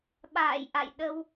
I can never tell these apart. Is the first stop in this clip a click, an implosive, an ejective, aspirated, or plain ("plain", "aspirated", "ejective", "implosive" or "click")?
implosive